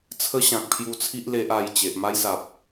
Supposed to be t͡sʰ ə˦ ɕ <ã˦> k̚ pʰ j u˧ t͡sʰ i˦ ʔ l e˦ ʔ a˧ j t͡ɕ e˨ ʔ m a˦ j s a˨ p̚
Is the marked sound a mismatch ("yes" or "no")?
yes